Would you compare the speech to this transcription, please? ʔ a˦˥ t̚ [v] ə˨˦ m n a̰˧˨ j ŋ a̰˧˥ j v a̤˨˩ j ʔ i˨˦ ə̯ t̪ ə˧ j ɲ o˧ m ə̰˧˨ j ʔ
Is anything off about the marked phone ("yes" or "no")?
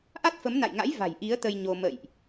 yes